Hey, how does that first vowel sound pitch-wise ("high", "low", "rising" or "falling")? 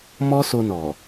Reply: high